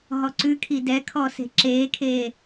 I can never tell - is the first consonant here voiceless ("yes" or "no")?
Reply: no